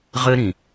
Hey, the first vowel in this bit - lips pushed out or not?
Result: no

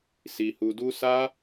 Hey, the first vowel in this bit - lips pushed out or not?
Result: no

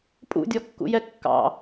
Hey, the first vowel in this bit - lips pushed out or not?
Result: yes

